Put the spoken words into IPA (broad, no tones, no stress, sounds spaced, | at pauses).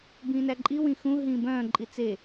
b ĩː n æ ǃʼ i w ĩ x ũ ɦ ĩː b œ̃ː ǃʼ i t͡s e